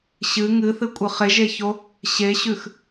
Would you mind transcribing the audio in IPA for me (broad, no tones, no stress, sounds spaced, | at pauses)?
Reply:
ɕ ɨ ŋ ɨ θ ɨ kʷʼ ɨ χ e ʒ e ç o | ɕ e ɕ ʉ x